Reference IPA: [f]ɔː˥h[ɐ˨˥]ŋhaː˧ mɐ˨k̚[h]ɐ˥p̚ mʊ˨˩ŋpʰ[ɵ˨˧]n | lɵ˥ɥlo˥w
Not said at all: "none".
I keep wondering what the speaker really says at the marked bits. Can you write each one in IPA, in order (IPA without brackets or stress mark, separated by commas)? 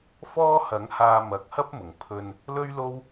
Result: f, ɐ˨˥, h, ɵ˧